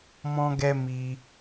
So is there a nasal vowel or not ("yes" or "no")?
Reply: yes